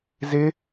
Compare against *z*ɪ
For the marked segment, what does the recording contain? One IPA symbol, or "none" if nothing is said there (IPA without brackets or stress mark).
z